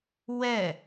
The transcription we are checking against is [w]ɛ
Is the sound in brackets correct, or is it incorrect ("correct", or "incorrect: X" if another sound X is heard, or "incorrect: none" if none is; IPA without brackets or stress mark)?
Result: correct